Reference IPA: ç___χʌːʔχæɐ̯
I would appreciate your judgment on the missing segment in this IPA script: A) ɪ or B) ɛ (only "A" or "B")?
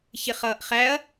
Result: A